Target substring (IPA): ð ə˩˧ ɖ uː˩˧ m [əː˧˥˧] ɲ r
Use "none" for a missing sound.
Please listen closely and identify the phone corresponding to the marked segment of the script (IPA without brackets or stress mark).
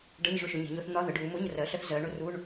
ʊː˧˥˧